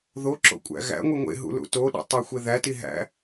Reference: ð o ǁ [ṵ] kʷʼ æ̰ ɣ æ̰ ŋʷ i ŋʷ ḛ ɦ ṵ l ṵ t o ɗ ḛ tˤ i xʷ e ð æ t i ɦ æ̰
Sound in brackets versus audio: incorrect: o̰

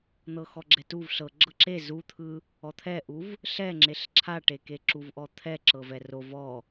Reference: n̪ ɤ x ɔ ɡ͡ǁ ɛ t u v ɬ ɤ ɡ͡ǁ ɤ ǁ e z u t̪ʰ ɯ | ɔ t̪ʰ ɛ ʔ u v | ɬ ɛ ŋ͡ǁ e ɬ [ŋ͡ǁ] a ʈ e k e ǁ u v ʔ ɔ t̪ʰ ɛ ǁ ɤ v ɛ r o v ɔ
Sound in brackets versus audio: incorrect: ǁʰ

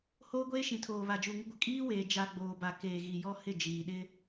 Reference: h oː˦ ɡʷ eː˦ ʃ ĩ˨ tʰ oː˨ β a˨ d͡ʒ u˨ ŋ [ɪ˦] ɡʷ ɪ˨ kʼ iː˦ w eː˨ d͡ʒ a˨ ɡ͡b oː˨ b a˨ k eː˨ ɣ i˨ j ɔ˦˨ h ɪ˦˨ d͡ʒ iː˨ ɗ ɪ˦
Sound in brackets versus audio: correct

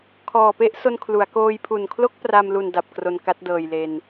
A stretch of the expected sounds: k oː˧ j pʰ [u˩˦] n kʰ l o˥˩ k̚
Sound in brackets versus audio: incorrect: u˨˩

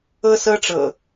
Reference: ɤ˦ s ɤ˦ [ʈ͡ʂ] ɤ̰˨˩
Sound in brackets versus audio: correct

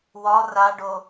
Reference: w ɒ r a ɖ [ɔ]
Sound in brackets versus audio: incorrect: o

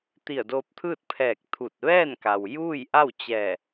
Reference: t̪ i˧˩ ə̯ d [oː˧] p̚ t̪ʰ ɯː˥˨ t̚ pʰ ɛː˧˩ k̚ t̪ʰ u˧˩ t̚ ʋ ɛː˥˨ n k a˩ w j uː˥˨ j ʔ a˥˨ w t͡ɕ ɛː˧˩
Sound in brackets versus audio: correct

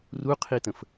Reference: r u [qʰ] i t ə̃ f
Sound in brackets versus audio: correct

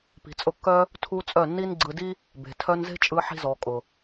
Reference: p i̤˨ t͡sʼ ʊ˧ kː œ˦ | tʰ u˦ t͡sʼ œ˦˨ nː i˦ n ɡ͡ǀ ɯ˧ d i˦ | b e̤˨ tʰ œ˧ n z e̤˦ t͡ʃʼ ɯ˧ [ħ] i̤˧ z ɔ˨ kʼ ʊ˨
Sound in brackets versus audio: correct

